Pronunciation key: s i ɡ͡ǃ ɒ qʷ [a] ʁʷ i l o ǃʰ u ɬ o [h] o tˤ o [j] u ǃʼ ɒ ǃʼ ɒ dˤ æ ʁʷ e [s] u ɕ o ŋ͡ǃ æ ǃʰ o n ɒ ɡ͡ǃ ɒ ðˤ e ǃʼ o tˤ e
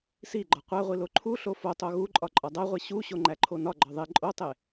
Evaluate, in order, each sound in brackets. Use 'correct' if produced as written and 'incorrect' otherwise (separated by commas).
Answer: incorrect, incorrect, incorrect, incorrect